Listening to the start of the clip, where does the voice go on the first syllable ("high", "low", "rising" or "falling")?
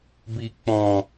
low